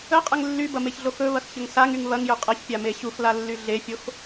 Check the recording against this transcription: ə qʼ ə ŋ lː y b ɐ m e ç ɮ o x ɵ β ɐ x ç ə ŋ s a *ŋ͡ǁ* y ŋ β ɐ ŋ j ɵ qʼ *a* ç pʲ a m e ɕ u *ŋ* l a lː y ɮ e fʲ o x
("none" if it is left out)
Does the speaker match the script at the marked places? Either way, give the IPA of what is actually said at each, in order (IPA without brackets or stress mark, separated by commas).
ŋ, ɐ, x